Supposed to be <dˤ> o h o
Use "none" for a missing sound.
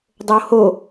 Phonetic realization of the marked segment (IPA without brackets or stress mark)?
dˤ